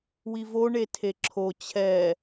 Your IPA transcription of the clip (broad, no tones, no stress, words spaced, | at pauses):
wivo ɳetʰeǁʰo t͡ɕʰɛ